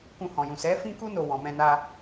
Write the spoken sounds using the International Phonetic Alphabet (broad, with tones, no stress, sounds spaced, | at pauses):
k ũ˧ h ɔ̃˨ j ũ˨ s ɛ˨˦ f ĩ˦ k u˦ n o˧ w ɔ̃˨ m ɛ̃˧ n a˧